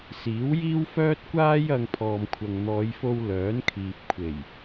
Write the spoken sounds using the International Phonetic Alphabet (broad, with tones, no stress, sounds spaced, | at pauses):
s iː˨˥ w j iː˥ w f œː˥ t̚ kʷ aː˥ j ɐ˧ ŋ pʰ ɔː˨ m kʷʰ ɐ˨ ŋ n̪ ɔː˨˧ j f o˧ w l œː˨˥ n kʰ iː˨ p̚ kʷʰ e˨˩ j